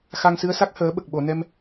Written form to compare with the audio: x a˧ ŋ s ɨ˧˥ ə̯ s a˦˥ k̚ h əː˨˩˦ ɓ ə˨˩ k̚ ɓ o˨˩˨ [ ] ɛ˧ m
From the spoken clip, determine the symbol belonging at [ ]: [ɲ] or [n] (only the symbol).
n